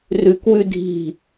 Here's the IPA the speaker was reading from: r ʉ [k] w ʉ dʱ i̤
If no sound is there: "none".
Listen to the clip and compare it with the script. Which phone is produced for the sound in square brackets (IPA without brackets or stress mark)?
k